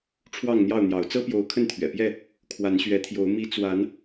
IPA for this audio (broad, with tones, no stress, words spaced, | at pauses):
ʈ͡ʂʰwɑ˥˨ŋn̪jɑ˥˨ʊ̯n̪jɑ˨˦ʊ̯ t͡sɤ˦pjo˨˦ʊ̯ kʰə˥˨nt̪ʰɥɛ̰˨˩pjɛ˥˨ | kʰwa˨˦nɕɥɛ˨˦t̪ʰjo˨˦ʊ̯ mi˨˦ t͡swa˨˦n